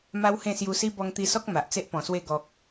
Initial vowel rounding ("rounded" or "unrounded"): unrounded